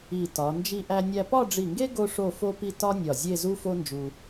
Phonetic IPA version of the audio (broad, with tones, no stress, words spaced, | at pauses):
i˧˩tɒ˩˧ nd͡ʒi˧ʔæ˧ nʲæ˧pɒ˥˧ɖ͡ʐi˧˩ŋɡe˥ ɡo˥ʂo˥˧fo˥pi˥˧ tɒ˥nʲɒ˧˩ zʲe˥˧zu˥fo˥nd͡ʒu˧